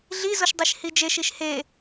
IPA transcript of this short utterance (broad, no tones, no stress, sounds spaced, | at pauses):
ɮ i z o ʃ dˤ e ʃ h i d͡ʒ e ʃ i ʃ h e